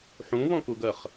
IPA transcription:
ħ ũ β ɔ̃ k u ɡ ɜ χ

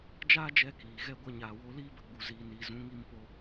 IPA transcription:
d͡ʒ aː˦ d͡ʒ ɛ˧ k iː˨ ɣ ɛ˦ ɡʷ ɛ˧ ɲ aː˨ w o˧ l iː˦ b ə˧ ɡ͡b u˨ z iː˨ n i˨ z ũ˨˦ ŋ i˧ m p o˧

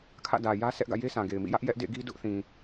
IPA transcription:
kʰ ä̰˦˨ d ä˨ j ä˦ s ɛ˦ ʔ ɡ ä̰˦˨ j e˦ sʰ ã˨ ɡ e˨ ɪ̯ m ḭ˦˨ j ä˦ ʔ j ɛ˦ ʔ d ḛ˦˨ ɡ i˦ d ʊ˦ ʔ θ ĩ˨

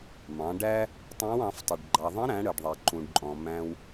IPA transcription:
m ɑ̃˩˧ ɖ æ˥ | tˤ ɛ̃˧˥ w ɑ̃˩˧ f tˤ ə˩ ɖ ɡ͡ǃ ɑ˩ ðˤ ə̃˧˥ ɾ æ̃˩˧ ɽ ə˩ ɖ ðˤ ɛ˩ ǃ ũ˩ ɖ ǃʼ ɔ̃˩ m æ̃˧ w

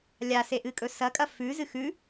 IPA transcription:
lʲ a s e ʔ ɨ kʼ ɵ s ɐ kʼ ɐ f ʉ z ɨ x ʉ

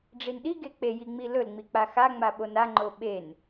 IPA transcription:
ɖ͡ʐ i n ɗ i ɡ e k͡p e j i ŋ͡m i l ɵ l ŋ͡m i k͡p a x a ŋ͡m a ɓ o n a ŋ͡ǃ o ɓ e n

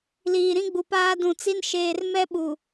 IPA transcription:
l iː˨ ɾ ĩ˦ ɡ͡b u˨ p aː˦ d ũ˨ t͡s i˦ n ʃ eː˨ r m ɛ˦ ɓ u˨

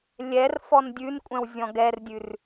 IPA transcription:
lʲ ɛ r f ɔ n dʲ ʉ n kʷʼ ɛ̃ w zʲ ɔ̃ ɡ ɛ r dʲ ʉ r

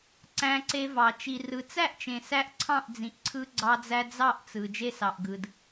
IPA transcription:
ǀ æ̃˧ ǀ e˧ v ɑ˨ t͡ʃ i˨ r ɯ˨ t͡s æ˦˨ ʔ t͡ʃ ẽ˨ s æ˦ ʔ ǀʰ ɑ̃˦˨ ʔ d͡z ĩ˨ ʔ ǀʰ ɯ˧ ɡ͡ǀ ɑ˧ d͡z æ˧ d͡z ɑ˦˨ ʔ t͡s ɯ˨ d͡ʒ e˧ s ɑ˨ ʔ ɡ ɯ˨ d

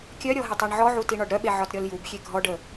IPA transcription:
kʲ œ ɾʲ ɔ ɦ ɪ tˤ ə˞ ɳ ʕ ɔ ʕ u t i ɳ ɒ ɖ ɾ œ ɓ e ʕ ɒ t ɾʲ ɔ l j u b xʲ e ɡʱ ɔ ɖ ə

